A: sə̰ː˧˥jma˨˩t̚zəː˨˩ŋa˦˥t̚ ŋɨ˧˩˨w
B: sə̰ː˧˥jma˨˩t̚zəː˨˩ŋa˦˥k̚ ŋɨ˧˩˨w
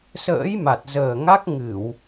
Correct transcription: B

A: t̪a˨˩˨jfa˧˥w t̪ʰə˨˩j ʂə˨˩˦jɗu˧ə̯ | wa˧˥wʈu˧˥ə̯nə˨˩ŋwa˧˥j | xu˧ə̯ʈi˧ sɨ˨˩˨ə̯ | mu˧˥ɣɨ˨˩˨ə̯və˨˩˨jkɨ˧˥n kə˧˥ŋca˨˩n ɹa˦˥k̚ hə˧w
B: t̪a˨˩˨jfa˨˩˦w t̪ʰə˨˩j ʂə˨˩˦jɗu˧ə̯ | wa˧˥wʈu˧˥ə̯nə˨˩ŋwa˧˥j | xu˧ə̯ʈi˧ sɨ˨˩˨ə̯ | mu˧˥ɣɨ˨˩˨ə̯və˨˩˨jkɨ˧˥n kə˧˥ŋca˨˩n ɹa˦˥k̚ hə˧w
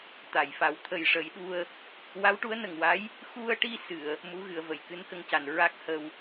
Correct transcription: B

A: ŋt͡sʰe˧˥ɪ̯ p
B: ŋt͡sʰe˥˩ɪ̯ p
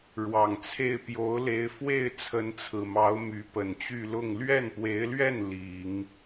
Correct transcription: B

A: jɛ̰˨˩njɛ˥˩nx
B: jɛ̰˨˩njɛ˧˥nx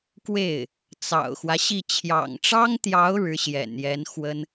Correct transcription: B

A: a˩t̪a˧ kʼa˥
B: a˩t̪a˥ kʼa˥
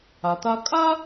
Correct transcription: A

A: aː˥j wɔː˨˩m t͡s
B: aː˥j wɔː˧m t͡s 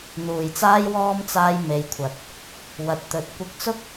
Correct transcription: B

